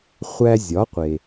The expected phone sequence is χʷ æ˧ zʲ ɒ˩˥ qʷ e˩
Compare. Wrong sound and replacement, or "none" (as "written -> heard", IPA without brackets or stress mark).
none